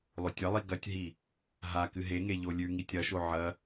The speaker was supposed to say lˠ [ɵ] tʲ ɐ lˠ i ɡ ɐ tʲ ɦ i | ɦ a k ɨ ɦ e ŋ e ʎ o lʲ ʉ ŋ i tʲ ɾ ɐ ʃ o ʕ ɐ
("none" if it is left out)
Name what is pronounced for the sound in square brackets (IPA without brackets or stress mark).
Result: ɵ